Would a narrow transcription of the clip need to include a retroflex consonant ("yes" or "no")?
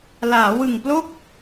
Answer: no